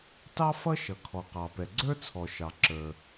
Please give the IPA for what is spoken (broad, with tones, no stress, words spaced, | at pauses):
tɑ˥ fʌ˥ ʃʌ˩ kʰɔ˩qɑ˩pɛ˩ ɡ͡ǀə˞˥t͡sʰɔ˩ ʃɑ˩ ǁə˞˩